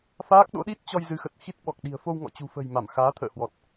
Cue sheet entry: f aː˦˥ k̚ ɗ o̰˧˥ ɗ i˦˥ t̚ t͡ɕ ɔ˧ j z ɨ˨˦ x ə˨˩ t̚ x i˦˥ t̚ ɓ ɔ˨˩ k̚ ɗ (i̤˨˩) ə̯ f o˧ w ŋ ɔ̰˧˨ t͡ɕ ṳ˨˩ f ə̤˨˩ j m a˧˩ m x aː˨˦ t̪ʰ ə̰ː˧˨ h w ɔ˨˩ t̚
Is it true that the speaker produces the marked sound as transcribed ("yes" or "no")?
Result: yes